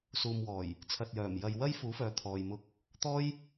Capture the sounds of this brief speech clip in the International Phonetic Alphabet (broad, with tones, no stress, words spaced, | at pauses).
suː˨mwɔː˨˩j | t͡sʰɐ˨t̚jœː˨˩m jɐ˨jwɐ˥j fuː˨˥fœː˨˧ t̪ʰɔː˧jmʊ˥k̚ | t̪ɔː˥j